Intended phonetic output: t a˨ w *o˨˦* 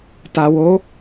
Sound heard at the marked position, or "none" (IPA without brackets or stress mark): o˨˦